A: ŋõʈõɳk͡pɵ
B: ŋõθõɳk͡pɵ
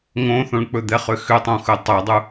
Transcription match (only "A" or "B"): B